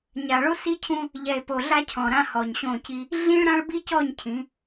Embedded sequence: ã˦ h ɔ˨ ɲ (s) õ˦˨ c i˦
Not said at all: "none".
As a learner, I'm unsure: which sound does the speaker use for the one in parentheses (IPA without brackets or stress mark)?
ɕ